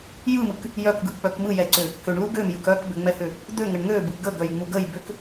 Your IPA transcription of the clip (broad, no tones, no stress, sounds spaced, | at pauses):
j ɯ m ɯ k | j œ k ɡ ɯ k͡p œ k m ɯ j ɛ ǀ ʏ | k ʏ ɳ l u ɡ ø m j ɯ k œ k b ʏ ŋ͡m ɛ h ʏ | d̪ ø ŋ ə ɳ ŋ ø b ɯ ɡ ə ɡ œ j ŋ͡m u ɡ ə j b ʏ k